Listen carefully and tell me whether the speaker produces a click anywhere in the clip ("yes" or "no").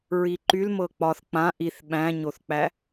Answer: yes